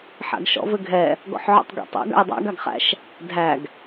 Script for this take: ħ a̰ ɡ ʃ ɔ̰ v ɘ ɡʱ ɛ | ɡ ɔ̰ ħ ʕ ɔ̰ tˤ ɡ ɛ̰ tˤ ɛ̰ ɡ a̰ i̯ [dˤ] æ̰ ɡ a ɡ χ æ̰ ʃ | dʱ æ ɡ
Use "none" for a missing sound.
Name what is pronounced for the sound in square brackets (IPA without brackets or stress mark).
dˤ